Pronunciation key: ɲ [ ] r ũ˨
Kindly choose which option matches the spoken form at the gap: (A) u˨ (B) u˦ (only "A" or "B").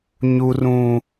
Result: A